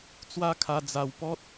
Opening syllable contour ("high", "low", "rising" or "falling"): high